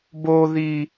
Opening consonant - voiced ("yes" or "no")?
yes